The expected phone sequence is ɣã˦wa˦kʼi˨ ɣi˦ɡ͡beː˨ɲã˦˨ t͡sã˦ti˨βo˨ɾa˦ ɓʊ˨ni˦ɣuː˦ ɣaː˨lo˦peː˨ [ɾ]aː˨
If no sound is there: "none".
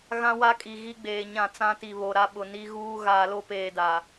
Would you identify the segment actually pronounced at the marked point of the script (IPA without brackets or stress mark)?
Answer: d